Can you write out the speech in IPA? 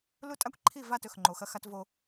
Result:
l u˦ tʼ a˦ kʷ ǃʰ i˦˨ v a˦˨ t ɵ˨ x ŋ͡ǃ o˨ x ɐ˦ x a˦ t v o˦

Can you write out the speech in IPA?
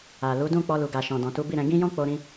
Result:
a˨ l u˨˦ d ũ˦˨ k͡p ɔ˧ l u˨ ɡ a˨ ʃ ɔ̃˨ d ɔ̃˨ t u˨˦ b i˦˨ ɾ ɛ̃˧ ɡ ĩ˦ j ɔ̃˦ k͡p o˧ ɾ ĩ˧

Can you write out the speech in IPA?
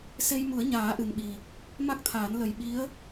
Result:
s e˧ j m u˨˩˦ ə̯ ɲ aː˨˩˦ ʔ ɨ˨˩ n ɓ i˨˩ | m a˦˥ k̚ t̪ʰ aː˨˩˦ n l ə˨˩ j ɓ i˧˥ ə̯

